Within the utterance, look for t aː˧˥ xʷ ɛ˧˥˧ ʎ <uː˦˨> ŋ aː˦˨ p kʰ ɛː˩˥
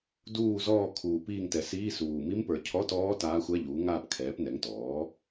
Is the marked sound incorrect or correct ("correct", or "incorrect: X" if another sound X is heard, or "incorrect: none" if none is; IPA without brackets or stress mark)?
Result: incorrect: uː˩˥